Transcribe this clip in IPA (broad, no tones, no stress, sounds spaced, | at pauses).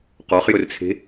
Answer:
q ɔ χ j ɵ r t͡sʰ e̤